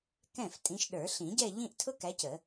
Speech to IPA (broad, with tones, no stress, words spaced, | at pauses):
kɛ̃˥˩f tʼĩ˨˦ʃɗə˞˨˩˦ ɬĩ˨˩˦ɟɛ˥˧ ʎĩ˥˧ʔtʰʊ˥kæ˨˦c ə˨˩˦